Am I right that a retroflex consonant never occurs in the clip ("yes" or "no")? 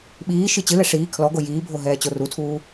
no